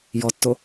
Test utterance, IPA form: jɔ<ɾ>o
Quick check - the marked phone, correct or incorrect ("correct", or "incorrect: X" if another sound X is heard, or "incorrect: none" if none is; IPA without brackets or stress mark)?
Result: incorrect: tː